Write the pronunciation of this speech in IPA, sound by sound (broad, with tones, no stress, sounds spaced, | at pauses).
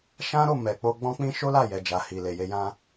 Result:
ʃ ã˦ ɾ o˦˨ m ɛ˨ k͡p o˧ ɡ͡b ɔ̃˦ k͡p ĩ˦ ʃ o˦ l a˦˨ j ɛ˨ d͡ʒ a˨ h i˨ l e˨ j e˧ j ã˦